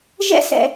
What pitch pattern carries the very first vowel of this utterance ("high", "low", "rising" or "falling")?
high